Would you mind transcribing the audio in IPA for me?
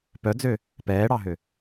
p œ d͡z ø | p ɛː ɽ ɑ ɦ ø

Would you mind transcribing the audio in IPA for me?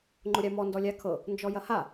ŋ͡ǃ ʊ ɾʲ a m ɔ n d ɔ lʲ a kʰ ɤ | n d͡ʒ ɔ j ɐ h a

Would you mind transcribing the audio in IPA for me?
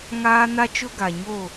ŋ aː˦ n a˦ t͡ʃ ʊ˦ ɡ a˨ ɲ o˦˨

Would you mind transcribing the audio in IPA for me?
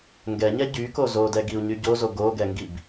ŋ ɡ ɛ ɲ ɛ ɟ y k o z o d ɛ ɡ i u̯ ɲ y ɟ o z o ɡ o ɡ ɛ ŋ ɡ i b

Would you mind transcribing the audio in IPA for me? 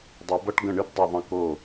dˤ ɨ˨˩˦ b ʌ˦˥ ʈ ɡ ə̃˥˩ ɳ ɨ˦˥ b dˤ ʌ˥˩ ðˤ ə̃˥˩ k o˥˩

